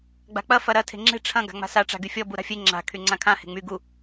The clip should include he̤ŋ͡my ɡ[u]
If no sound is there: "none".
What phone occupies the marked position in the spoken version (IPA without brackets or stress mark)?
u